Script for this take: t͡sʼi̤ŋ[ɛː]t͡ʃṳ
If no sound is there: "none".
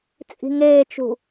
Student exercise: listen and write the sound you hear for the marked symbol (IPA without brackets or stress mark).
eː